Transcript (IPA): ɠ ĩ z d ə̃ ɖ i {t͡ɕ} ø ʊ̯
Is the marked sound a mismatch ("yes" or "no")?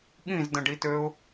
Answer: yes